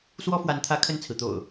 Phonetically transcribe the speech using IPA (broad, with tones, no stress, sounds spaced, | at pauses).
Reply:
s w ɔ˦ f w a˨˦ n t̪ʰ ä˨˦ kʰ ə˥˨ n t͡sʰ ɹ̩˩ t̪ o̰˨˩ ʊ̯